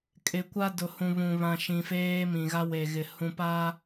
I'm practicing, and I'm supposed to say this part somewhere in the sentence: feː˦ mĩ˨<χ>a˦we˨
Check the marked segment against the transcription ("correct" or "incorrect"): incorrect